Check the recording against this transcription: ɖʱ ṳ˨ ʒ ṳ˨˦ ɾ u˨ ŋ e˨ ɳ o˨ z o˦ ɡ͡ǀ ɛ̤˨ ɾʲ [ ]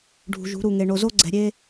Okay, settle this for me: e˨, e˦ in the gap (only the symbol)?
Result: e˦